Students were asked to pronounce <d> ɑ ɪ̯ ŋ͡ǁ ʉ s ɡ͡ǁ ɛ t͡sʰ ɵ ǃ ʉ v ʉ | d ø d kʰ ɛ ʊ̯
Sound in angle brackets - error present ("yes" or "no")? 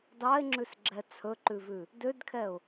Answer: no